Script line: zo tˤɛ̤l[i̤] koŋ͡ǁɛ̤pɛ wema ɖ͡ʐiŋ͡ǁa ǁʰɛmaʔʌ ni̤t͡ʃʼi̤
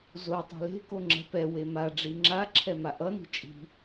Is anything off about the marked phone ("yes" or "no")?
yes